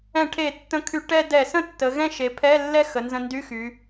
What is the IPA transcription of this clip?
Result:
ɛ̃˧˩˧ʈʰe˧˩˧tːə̃˧kʰy˧˩˧ ʈɛ˥˧ dɛ˧˩˧sə̃˥˧tːə˩˧ ɣɛ̃˥˧ʃe˩˧pʰɛ˧˥˧lːɛ˥˧ xə˩˧nzə̃˧ndy˧˥˧xy˩˧

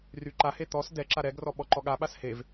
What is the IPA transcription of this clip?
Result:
ryǃahe t̪ɔs dɛǁa ɾɛɡrɔ ɓɔǃɔɠaɓas hev

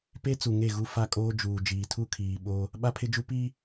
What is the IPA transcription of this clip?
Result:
pe˦ t͡su˨ŋe˦˨ ɣu˦fa˦ kʼoː˦ d͡ʒuː˨ d͡ʒiː˨tʰu˦˨kʰiː˨ ɓo˦ | ɓa˦pʰɪ˦d͡ʒu˦ pi˦

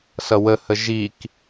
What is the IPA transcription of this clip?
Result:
sʌwə həʒik

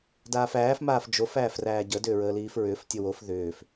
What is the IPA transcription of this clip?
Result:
daːfæːf maːfd͡ʒof æːfræːɟə dʏːɹəːliːfɹʏːf tʲəwof ðʏːf

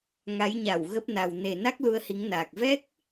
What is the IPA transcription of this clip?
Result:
ŋa˨˦jɲa˧˩wɣə˦˥p̚na˨˩w ne˨˩na˦˥k̚ lu˧ə̯hi˨˦ŋnaː˨˩k̚ vɛ˦˥k̚

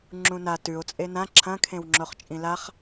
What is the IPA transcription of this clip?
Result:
ŋ͡ǁũna tʉo̯ t͡sʼenã ǁʰɐ̃kʰẽw ŋ͡ǁoχt͡ʃʼĩlaχ

